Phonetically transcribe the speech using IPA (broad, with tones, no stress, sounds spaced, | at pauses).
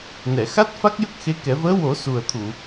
n ɛ˨˩˨ x a˦˥ t̚ f a˦˥ k̚ j ə˦˥ k̚ x e˧˥ k ɛ˨˩˦ v əː˧˥ w o˨˩˦ s u˨˩ ə̯ t̪ʰ u˨˩˨